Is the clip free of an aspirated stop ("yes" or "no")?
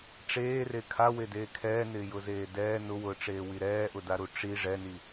no